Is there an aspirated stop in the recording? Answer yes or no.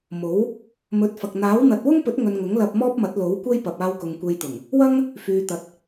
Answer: no